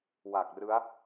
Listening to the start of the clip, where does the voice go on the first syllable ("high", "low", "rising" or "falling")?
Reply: low